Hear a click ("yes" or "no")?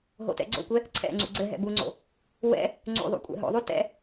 yes